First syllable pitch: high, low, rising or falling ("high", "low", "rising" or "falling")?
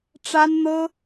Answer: high